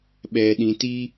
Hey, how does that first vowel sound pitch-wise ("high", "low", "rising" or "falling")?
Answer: low